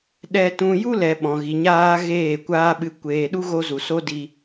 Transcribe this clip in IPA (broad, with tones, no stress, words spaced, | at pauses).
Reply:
ɗɛ˧tũ˧ ju˦lɛ˨ ɓɔ̃˨ɣi˨ɲaː˧ ɣeː˦˨kʷaː˦ɓɨ˧ kʷeː˨ɗu˦ɣo˧zu˨ so˦di˧